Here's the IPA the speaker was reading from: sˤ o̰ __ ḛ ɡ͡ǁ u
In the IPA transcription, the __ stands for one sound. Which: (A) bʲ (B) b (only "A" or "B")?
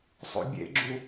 A